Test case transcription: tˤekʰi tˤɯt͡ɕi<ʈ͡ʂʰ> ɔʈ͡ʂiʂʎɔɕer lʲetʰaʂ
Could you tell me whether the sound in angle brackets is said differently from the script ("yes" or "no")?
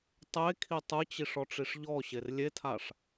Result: yes